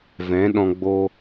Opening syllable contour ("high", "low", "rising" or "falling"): rising